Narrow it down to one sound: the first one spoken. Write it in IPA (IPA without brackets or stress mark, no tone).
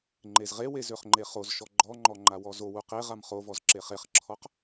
ŋ͡ǃ